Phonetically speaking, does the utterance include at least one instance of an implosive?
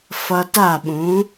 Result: yes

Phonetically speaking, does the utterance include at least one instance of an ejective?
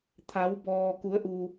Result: no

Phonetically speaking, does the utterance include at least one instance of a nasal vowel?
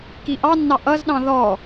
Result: yes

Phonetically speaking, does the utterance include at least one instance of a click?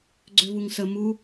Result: yes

